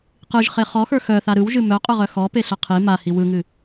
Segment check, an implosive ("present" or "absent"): absent